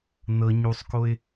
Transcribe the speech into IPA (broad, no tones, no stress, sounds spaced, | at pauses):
n ɤ ɲ u sˤ k o ɪ̯